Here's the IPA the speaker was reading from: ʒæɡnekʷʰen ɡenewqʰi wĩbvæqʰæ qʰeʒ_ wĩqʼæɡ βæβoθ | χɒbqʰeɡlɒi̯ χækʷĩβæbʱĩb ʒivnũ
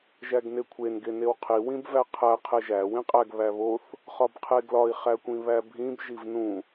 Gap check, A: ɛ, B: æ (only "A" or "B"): B